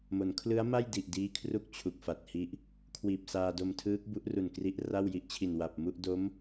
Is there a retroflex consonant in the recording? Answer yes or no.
no